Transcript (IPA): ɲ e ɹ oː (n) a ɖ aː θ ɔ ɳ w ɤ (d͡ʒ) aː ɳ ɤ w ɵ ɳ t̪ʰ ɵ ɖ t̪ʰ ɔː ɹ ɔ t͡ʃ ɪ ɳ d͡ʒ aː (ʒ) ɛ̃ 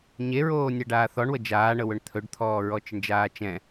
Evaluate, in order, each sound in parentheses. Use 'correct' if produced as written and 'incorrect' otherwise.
incorrect: nʲ, correct, incorrect: t͡ʃ

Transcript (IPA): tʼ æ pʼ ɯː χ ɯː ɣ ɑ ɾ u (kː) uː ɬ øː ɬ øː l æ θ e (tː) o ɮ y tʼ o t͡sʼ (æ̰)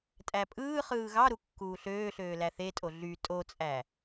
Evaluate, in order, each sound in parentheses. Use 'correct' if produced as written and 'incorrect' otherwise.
correct, incorrect: tʼ, incorrect: æ

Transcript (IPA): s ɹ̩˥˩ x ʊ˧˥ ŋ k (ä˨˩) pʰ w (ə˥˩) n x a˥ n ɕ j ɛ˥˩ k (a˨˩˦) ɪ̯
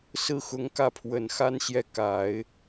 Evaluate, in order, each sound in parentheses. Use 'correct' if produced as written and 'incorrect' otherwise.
incorrect: ä˥˩, incorrect: ə˨˩, correct

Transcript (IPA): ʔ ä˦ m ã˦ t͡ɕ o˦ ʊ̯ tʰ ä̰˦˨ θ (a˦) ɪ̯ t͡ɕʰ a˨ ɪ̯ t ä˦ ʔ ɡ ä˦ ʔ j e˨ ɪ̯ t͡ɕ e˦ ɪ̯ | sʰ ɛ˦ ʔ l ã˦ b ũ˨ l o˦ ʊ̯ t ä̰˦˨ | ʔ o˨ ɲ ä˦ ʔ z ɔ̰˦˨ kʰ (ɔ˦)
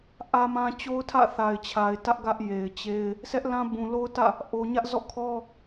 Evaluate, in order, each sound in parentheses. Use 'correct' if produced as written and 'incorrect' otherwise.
incorrect: a˨, correct

